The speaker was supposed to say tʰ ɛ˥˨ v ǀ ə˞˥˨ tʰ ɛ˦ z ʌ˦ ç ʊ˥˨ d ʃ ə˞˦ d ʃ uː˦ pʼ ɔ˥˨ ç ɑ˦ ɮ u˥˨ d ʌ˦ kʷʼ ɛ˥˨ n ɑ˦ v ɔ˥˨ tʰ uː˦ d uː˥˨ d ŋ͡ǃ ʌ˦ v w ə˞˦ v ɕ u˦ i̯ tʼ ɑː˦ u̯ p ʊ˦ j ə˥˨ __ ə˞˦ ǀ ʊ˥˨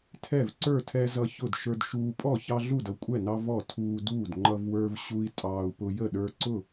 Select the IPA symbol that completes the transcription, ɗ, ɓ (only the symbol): ɗ